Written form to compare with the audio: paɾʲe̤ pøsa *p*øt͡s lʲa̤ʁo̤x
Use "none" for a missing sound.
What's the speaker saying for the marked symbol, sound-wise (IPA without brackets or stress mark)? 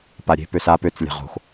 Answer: p